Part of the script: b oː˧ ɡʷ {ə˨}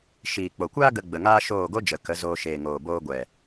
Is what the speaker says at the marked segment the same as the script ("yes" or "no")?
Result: no